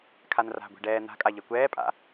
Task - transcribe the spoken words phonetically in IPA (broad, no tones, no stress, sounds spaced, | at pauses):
kʰ a n r a̤ ɡʷ i̤ ɖ ɛː n̪ a̤ kʼ a ʎ ɛ kʷ ɛː pʼ a̰